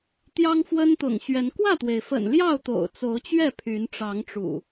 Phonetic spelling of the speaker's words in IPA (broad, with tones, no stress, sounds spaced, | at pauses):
t̪ j ɑ˦ ŋ f w ə˦ n t̪ ʊ̰˨˩ ŋ ɕ ɥ ɛ˨˦ n k w ä˥˨ t̪ w e˩ ɪ̯ f ə̰˨˩ n l j ɑ˥˨ ʊ̯ t̪ o̰˨˩ ʊ̯ t͡s o˨˦ ʊ̯ t͡ɕ ɥ ɛ˥˨ pʰ y˨˦ n ʈ͡ʂ ɑ˨˦ ŋ ʈ͡ʂ ṵ˨˩